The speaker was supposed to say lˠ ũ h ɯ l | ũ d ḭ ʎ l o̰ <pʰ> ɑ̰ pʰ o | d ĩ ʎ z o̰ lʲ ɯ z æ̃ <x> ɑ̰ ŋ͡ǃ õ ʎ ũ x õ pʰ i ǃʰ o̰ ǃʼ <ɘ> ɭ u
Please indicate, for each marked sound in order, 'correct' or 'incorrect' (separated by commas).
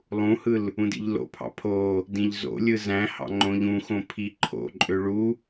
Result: correct, incorrect, incorrect